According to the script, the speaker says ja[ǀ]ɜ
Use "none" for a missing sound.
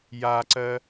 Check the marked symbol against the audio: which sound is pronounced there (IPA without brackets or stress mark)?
ǀ